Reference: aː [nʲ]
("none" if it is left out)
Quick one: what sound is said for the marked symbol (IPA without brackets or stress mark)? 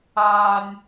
nʲ